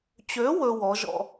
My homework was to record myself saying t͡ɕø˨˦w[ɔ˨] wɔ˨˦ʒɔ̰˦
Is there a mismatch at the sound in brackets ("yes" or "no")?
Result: yes